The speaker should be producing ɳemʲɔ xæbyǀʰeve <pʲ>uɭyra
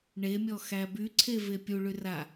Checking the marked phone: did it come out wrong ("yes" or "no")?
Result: no